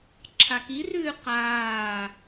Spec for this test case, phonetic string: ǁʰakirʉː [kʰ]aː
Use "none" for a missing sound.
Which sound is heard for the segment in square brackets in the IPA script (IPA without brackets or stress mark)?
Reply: q